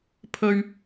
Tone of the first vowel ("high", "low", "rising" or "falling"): high